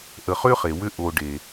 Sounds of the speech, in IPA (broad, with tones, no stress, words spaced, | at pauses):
ʔə˨χʏː˥χe˩ wʏ˦ ʔoː˨ ɖe˩